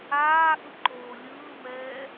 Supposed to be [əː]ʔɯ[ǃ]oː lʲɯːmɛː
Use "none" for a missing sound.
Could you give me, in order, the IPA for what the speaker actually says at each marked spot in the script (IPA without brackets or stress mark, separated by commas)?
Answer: aː, ǃ